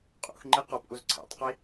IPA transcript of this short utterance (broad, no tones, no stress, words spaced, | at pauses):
qʼṵx ŋ͡ǃiqɔpʔuz ǀʰɛ̰tˤqi